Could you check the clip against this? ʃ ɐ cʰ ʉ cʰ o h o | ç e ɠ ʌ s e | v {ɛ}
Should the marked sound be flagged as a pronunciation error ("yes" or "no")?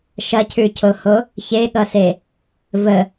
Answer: yes